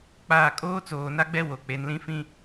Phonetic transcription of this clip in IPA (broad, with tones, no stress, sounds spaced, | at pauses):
k͡p aː˨ kʼ oː˦ t͡s oː˨ n a˦ ɡ͡b ɛ˦ w o˨ k͡p e˨ n l ĩ˦ f ĩ˦